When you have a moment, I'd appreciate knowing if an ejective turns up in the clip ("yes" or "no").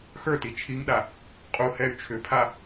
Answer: yes